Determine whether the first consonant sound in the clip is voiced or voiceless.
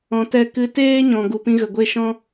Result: voiceless